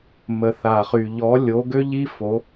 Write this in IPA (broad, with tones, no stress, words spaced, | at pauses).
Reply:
mə˩θa˩χy˩ ʎɔ˩˥lʲo˩˥ ɡø˥ʎi˥fo˩˥